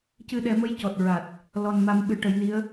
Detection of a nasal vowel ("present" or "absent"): absent